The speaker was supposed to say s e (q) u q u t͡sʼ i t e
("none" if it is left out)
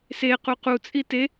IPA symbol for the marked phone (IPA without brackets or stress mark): q